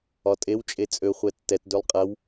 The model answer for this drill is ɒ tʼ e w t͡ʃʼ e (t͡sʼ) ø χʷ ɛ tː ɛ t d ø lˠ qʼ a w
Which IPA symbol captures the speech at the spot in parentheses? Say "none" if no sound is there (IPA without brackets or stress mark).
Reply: t͡sʼ